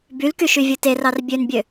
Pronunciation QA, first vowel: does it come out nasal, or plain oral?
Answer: oral